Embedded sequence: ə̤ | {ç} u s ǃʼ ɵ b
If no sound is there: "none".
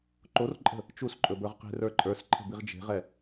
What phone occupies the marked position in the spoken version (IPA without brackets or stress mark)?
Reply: t͡ʃ